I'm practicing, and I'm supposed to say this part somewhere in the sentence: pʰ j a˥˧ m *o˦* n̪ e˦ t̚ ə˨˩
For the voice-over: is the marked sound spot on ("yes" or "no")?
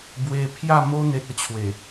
yes